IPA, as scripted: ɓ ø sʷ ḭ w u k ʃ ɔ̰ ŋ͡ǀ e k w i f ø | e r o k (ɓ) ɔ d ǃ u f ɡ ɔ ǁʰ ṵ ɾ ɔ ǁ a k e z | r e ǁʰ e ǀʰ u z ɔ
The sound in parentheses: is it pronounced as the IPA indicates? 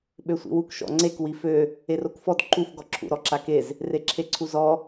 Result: no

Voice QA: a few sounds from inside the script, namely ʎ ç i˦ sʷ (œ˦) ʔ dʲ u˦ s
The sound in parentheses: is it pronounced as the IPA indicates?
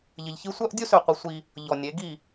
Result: yes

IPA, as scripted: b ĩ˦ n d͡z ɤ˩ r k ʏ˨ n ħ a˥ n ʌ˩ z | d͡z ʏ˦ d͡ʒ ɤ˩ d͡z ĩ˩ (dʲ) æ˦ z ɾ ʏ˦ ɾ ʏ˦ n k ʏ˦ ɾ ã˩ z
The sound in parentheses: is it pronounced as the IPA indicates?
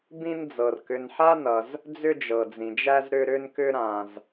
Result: no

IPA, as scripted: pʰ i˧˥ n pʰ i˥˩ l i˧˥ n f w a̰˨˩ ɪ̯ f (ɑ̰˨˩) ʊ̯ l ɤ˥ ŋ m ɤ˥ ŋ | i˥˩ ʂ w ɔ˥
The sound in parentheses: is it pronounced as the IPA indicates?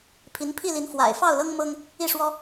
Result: no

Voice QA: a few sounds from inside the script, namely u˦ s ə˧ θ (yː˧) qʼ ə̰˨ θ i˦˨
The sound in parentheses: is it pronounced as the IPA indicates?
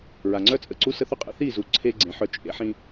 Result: no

